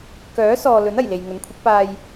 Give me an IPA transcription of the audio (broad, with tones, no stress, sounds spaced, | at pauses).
k œː˨˥ s ɔː˨ l ɵ˨˥ n ɐ˨˩ j l e˨ j ŋ ɵ˨˥ n kʷʰ ɪ˨˥ k̚ p aː˧ j